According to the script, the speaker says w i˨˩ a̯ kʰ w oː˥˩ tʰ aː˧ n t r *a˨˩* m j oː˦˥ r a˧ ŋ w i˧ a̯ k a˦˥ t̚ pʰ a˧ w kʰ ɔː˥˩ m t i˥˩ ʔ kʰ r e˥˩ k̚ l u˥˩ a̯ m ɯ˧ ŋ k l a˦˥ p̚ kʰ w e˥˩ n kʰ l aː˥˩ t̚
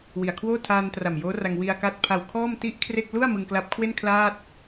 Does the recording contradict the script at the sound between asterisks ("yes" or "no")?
no